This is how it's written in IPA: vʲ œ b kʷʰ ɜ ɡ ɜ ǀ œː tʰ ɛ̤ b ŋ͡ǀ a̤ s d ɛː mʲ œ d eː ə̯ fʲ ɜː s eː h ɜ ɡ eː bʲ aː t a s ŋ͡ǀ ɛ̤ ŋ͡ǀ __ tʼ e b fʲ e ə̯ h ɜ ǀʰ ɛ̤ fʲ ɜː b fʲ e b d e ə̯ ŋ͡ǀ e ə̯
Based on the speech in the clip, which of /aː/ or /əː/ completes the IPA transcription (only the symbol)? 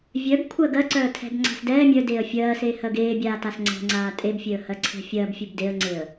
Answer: aː